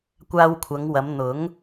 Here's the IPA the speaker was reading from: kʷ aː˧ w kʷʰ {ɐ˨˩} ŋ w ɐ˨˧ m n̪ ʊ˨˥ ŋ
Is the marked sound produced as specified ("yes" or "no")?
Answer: no